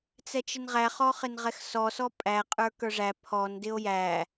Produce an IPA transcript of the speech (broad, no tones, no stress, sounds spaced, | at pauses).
t͡s ɛ t͡ʃ ɪ n ʁ æ χ ɔ χ ɪ n ʁ ɛ x s ɔ s ɔ pʼ æ qʼ ə˞ k ə˞ ʐ æ pʰ ɔ n d ɪ o̯ j æ